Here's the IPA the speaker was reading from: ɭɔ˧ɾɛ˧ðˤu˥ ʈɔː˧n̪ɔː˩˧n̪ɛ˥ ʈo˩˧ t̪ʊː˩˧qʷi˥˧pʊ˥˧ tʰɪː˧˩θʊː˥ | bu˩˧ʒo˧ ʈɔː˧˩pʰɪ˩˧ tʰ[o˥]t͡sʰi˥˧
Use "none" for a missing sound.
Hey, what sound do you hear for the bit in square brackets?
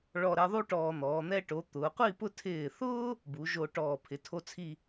o˥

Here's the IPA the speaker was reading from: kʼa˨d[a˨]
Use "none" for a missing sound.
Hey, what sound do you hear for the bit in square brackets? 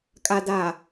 a˨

